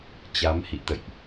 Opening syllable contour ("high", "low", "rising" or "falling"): rising